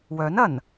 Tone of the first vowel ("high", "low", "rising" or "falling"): rising